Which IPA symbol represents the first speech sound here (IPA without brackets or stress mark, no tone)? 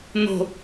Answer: n̪